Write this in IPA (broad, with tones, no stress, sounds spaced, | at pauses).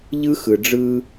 ʎ ɯ˦ x ɯ˨ ɖ͡ʐ ɯ˦